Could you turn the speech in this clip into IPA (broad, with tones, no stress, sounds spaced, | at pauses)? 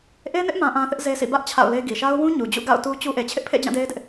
ʔ e˦ n ɪ˦ ʔ m ã˦ ʔ ã˦ θ ɪ˦ ʔ z e˦ s ḭ˦˨ b ä˦ ʔ t͡ɕʰ a̰˦˨ ʊ̯ l e˦ ɡ i˨ ʃ a˦ ʊ̯ w ũ˦ ɲ u˨ d͡ʑ ṵ˦˨ ɡ a̰˦˨ ʊ̯ t u˦ t͡ɕ u˦ ʔ e˨ t͡ɕʰ ɪ˦ ʔ pʰ ḛ˦˨ d͡ʑ ã˦˨ d e˦ ɪ̯ d ɪ˦ ʔ